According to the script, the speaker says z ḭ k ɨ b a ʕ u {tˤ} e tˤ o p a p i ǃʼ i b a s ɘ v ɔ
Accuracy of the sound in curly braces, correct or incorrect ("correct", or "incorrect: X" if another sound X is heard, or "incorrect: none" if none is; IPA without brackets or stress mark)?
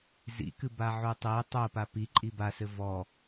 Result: correct